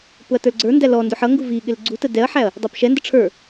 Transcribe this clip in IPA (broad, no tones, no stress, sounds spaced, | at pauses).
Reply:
p ʊ ɐ̯ t ə˞ l ɡ͡ǀ ə˞ n d æ l ɔ n d ʊ ħ ʌ ŋ ɡ u v i ɠ ɪ l ɡ͡ǀ u t ə d ɛ ɐ̯ ħ æ ɐ̯ | dˤ æ p ʃ ɛ n d ə ʈ͡ʂʰ ə˞